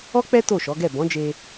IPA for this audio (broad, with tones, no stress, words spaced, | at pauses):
ɔ˦k͡pɛ˦ to˦˨ʃɔ˨˦ɡɛ˦˨ bɔ̃˨˦d͡ʒe˧